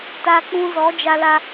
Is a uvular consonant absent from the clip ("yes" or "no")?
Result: yes